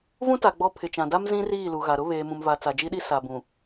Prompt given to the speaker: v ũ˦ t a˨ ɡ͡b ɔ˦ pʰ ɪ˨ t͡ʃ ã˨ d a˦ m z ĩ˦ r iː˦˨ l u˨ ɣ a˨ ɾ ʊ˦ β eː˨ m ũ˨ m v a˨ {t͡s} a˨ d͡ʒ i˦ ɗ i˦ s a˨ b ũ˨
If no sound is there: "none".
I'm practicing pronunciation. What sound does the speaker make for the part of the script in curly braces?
t͡s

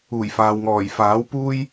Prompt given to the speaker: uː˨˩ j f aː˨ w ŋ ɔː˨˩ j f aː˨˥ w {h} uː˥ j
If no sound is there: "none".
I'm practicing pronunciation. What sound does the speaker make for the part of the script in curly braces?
p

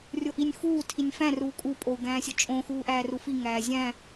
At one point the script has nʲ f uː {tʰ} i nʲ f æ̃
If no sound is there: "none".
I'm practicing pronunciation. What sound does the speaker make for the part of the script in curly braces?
tʰ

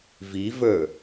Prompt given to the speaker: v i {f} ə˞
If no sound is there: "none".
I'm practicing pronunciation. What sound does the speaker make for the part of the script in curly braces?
v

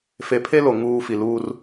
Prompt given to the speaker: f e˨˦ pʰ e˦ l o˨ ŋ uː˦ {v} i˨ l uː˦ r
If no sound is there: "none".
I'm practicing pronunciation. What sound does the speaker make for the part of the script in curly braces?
f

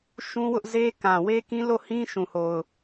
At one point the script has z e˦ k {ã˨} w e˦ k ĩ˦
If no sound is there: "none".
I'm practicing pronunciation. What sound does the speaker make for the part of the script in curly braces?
ã˨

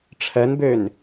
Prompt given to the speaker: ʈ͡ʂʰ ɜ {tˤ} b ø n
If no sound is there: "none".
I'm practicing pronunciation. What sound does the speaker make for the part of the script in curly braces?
n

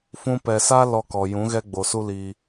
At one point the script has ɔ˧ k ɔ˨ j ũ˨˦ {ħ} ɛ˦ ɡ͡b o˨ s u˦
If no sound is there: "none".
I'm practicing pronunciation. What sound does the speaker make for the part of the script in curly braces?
ɣ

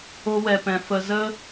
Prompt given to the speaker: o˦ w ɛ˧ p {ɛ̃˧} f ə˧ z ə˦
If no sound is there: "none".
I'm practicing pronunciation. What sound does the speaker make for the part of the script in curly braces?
ɛ̃˧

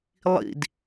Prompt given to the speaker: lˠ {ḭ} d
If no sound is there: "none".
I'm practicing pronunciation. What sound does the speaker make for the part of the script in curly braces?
ḭ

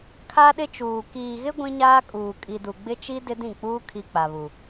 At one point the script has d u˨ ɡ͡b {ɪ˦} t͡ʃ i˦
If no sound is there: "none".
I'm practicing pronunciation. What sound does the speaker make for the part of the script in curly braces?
ɪ˦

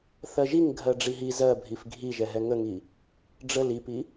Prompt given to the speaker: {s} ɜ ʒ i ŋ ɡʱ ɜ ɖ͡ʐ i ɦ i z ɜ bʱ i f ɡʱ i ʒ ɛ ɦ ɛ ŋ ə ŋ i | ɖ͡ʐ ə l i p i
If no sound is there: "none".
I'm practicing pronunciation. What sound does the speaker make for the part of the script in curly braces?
θ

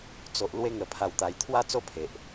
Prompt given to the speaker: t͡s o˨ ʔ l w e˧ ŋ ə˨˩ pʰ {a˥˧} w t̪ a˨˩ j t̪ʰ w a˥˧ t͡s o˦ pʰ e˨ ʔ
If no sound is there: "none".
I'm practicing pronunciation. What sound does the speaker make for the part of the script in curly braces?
a˨˩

